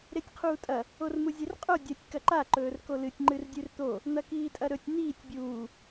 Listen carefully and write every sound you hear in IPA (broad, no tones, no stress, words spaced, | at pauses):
ɾetʲqʰuːtʼɐ | ormuzʲerqʼo dʲɐtʲ kɐǃa ǃɵːrkolɨtʲ ŋ͡ǃɨrdʲʉrt̪o | n̪ɐkiːtʼɐɾɵtʲ n̪iːtʲ bʲuː